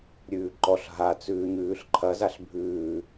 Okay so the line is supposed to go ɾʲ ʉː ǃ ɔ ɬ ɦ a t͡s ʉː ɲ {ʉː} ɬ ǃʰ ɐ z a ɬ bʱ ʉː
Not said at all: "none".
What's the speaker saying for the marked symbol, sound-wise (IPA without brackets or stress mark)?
ʉː